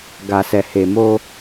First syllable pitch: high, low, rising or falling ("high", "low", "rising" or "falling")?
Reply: low